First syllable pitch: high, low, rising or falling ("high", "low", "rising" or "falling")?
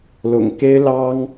low